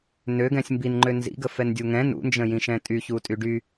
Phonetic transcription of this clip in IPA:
nøɡɛ̃sʲ mbinŋ͡ǃø nzḭɡə fɛndʲuŋɛ̃ nṵnd͡ʒə̃jĩʃɛ̃ tʼyçu tʼyɖy

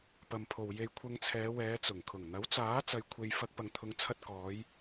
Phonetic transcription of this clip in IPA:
pɐ˨mpʰo˨w je˧jkʷʰɐ˧ŋt͡sʰɛː˨˧ wɛː˨˧ t͡sʊ˨˩ŋkʰʊ˨˩ŋ n̪ɐ˨˥wt͡saː˨˥ t͡sɐ˧jkʷʰe˧j fɐ˧k̚ pɐ˨ŋt̪ʰʊ˨˧ŋt͡sʰɐ˧t̚ kɔː˨˧j

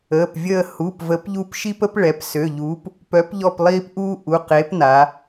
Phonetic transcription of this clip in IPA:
əː˩˧˩pvʲəː˦˨ hu˩˧˩p və˨˥pʎu˦p ʃi˦pə˦pɭɛ˩˧p sø˩˧˩ʎuː˨˥p | pœ˨˥pʎɔ˦˨plˠiː˦p ʔuː˦ʔu˩˧˩ qe˨˥pna˩˧

